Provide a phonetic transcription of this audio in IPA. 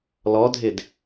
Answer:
l ɔ dʱ ɪ d

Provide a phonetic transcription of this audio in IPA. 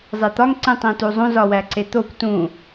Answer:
zˤ e t̪ ɒ ŋ ǀ ĩ tˤ ẽ t u zˤ ũ z ɒ w æ ǀ e t̪ o kʷ t ũ

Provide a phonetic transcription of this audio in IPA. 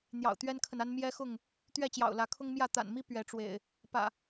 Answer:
n̪ j ɑ̰˨˩ ʊ̯ t̪ ɥ ɛ˦ n kʰ ə˨ n a˦ n m j ɛ˦ x ʊ˥˨ ŋ | t̪ ɥ ɛ˥˨ t͡ɕ j ɑ̰˨˩ ʊ̯ l ä˨˦ kʰ ʊ˦ ŋ m j ä˥˨ t̪ a̰˨˩ n m i˦ p ɥ ɛ˨˦ ʈ͡ʂ w ḛ˨˩ ɪ̯ | p ä̰˨˩

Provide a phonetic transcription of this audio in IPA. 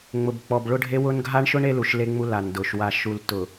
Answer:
ŋ͡m ʊ˨ b k͡p ɔ˨ b ɭ ʊ˦ ɖʱ e˦ w ʊ˦ n ɡʱ a˦ ɳ ʃ ʊ˦ ɳ e˦ l u˨ ʃ l e˦ ŋ͡m u˦ l a˨ n d ʊ˨ ʃ w a˨ ʃ u˨ l t ʊ˨

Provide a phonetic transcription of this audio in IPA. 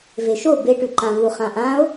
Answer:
v e ʃ o b e ʈ ʉ ǃ ã v u χ ã ʔ ã o̯

